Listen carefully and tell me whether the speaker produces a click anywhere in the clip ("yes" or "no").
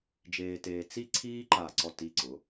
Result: yes